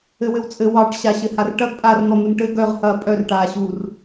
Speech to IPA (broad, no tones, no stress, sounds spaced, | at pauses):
ɘ w ɘ w t͡sʼ ɘ w ɑ ʈ ɕ a ɕ ɘ h a r ʈ ɐ ɡ pʼ a r n̪ ɔ n̪ u n ʈ ɘ ɡ œ ʁ h ɐː pʼ œ r ʈ aː ɕ uː r